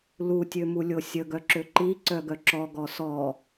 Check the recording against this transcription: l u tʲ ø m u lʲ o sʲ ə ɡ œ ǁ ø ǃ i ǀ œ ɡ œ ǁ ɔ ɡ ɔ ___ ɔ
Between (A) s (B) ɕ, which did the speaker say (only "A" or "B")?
A